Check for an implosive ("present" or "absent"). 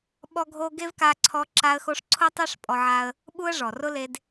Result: present